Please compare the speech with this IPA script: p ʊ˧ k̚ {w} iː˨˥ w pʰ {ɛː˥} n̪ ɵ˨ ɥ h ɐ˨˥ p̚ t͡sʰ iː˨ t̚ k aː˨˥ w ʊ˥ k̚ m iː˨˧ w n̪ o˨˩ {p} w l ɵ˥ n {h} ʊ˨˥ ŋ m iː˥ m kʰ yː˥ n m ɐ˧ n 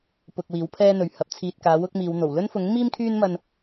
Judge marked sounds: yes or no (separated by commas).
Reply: yes, yes, no, no